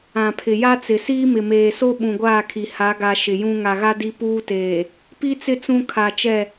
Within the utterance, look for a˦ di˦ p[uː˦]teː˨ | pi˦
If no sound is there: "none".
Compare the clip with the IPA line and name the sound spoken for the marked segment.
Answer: uː˦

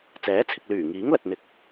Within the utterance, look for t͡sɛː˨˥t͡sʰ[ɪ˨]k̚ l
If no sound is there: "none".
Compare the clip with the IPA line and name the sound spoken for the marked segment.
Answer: ɪ˨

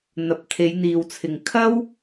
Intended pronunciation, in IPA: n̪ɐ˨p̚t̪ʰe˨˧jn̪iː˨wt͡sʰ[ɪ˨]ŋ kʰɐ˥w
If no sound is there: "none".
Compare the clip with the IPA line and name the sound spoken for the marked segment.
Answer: ɪ˨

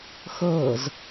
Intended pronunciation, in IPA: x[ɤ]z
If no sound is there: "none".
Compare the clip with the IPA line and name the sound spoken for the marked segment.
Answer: ɤ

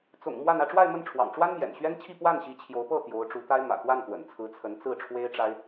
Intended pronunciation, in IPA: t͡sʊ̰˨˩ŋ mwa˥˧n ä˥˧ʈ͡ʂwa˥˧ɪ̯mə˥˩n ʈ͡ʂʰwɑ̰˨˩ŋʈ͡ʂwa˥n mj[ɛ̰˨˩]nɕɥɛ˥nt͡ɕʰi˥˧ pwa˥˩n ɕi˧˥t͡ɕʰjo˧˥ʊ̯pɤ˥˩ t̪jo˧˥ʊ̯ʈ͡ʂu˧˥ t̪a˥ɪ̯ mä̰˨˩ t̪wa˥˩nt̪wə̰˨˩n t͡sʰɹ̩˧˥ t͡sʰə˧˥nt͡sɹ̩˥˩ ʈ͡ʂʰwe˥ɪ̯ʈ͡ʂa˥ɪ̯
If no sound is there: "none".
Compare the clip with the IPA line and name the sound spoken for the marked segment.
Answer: ɛ̰˨˩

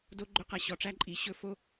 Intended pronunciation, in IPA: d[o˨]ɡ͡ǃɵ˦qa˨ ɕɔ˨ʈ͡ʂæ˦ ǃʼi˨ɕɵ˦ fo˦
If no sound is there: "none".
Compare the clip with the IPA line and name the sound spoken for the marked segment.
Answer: o˦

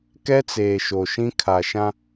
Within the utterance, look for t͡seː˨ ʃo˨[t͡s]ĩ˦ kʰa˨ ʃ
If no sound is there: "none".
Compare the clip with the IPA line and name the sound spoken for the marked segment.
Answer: ʃ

